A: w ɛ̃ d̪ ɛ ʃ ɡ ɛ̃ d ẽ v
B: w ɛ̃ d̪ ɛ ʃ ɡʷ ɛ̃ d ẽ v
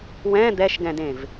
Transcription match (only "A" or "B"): A